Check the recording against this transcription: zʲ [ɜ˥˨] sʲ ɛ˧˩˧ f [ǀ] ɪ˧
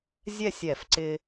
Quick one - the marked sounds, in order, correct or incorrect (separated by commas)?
incorrect, correct